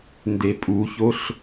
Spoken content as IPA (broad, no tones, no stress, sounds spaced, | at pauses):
n d e pʼ u ç o ɬ